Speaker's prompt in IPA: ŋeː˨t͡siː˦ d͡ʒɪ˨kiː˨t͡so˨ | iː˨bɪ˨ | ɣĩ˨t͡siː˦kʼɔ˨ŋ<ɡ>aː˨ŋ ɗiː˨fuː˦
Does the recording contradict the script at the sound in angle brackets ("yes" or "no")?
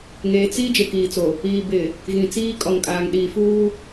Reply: yes